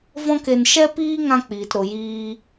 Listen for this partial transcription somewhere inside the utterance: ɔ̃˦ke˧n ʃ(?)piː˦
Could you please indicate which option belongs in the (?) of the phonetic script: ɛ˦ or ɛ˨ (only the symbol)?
ɛ˦